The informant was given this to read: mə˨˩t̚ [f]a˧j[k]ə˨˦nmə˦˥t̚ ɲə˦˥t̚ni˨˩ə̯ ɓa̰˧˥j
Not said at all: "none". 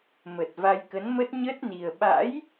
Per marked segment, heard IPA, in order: v, k

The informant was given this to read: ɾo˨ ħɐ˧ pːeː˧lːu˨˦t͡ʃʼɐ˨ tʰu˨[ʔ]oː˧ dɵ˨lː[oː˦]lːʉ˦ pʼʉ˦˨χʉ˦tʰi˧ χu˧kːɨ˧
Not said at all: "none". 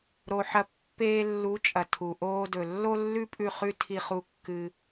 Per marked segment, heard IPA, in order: ʔ, o˦

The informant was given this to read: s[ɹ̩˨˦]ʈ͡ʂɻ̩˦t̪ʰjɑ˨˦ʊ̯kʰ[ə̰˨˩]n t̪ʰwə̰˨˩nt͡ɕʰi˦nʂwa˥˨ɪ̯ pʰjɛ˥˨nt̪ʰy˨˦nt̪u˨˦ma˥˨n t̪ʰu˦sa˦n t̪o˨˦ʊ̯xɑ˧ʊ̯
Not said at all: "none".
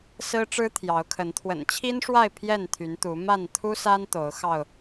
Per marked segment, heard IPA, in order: ɹ̩˦, ə˨˦

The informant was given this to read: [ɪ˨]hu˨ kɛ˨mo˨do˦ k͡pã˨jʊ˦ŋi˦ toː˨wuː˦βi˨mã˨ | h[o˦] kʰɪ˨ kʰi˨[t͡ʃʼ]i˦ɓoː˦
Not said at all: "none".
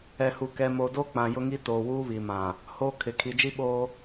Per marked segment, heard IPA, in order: ɛ˨, oː˦, d͡ʒ

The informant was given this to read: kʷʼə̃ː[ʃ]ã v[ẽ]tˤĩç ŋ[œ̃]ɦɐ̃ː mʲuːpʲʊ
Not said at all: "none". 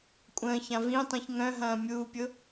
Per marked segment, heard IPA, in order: ç, ĩ, œ̃

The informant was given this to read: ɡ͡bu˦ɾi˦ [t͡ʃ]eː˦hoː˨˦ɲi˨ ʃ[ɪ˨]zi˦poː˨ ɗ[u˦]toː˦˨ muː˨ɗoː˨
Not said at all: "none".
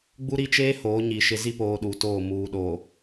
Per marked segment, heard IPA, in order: t͡ʃ, ɪ˨, u˨

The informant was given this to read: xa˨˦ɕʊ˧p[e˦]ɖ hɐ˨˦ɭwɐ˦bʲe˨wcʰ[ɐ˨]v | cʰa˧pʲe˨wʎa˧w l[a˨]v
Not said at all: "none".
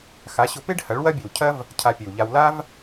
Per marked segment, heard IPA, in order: e˦, ɐ˦, a˦

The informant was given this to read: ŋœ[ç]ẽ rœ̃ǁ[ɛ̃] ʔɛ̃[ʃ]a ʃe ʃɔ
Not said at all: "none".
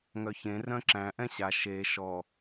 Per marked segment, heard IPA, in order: ç, æ̃, ɕ

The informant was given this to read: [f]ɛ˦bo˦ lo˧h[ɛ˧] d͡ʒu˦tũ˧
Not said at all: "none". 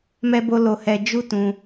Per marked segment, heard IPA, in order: m, ɛ˧

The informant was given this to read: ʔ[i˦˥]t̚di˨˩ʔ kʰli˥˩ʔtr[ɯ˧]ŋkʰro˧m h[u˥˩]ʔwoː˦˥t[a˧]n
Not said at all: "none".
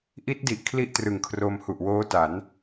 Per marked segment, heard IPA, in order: i˦˥, ɯ˨˩, u˨˩, a˩˦

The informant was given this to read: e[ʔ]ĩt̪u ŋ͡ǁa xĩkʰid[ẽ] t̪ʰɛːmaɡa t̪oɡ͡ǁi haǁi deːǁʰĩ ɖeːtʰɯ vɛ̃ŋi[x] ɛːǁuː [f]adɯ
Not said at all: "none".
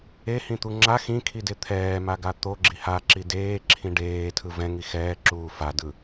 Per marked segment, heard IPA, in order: h, e, x, f

